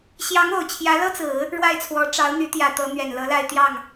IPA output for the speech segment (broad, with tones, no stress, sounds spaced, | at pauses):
ɕ j ɑ˧˥ ŋ o˨˩ ʊ̯ t͡ɕʰ j ä˧˥ l ɤ˥ t͡s ɹ̩˨˩˦ | ɻ w a˥˩ ɪ̯ t͡sʰ w ɔ˧˥ ʈ͡ʂ ɑ˧˥ ʊ̯ n̪ y˧˥ t̪ j ä˨˩ t̪ ɤ˧˥ n̪ ɥ ɛ˨˩ n l ɤ˧˥ l a˥˧ ɪ̯ t̪ j ɑ˥˩ ŋ